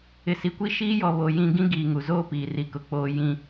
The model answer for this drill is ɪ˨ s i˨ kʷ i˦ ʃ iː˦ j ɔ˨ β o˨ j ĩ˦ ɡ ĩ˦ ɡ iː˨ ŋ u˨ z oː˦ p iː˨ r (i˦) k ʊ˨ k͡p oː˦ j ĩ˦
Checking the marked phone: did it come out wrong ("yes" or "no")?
yes